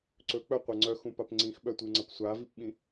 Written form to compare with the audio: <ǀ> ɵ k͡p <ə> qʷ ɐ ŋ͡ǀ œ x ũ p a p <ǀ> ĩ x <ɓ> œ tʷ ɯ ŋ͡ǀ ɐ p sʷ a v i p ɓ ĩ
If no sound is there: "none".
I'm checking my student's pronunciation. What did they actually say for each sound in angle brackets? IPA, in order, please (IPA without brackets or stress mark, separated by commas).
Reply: ǀ, œ, ŋ͡ǀ, ɓ